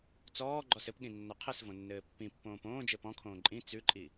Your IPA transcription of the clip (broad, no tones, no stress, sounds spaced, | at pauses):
t͡s ɔː ɡ͡ǃ ɔ s ɘ p ɠ ĩ nː ɔ qʰ ɘ s v õ nː ɘː pː ĩ pː õː p õː d͡ʒ ɘ p ɔ̃ kʰ õː ǃʼ ĩ t͡s ʉ ǃʼ i